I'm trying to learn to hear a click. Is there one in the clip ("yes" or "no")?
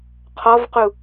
no